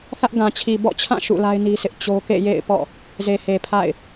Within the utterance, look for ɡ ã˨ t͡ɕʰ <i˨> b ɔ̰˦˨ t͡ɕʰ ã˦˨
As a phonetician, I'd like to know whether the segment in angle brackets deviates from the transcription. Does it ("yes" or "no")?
no